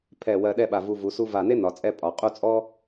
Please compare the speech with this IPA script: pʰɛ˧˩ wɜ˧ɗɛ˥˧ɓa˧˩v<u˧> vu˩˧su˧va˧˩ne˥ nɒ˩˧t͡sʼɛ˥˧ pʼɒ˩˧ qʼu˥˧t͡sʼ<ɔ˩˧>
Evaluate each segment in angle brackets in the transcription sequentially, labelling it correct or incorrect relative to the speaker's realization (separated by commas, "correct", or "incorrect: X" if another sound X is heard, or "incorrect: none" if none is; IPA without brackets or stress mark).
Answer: correct, incorrect: ɔ˥